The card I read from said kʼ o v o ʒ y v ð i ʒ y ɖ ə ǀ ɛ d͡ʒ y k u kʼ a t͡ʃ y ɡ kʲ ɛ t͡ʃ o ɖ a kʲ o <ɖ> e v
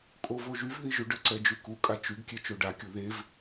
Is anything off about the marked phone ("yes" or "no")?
yes